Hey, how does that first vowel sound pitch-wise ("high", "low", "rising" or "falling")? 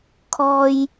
low